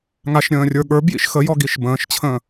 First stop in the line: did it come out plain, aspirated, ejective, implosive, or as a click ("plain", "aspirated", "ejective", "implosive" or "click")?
implosive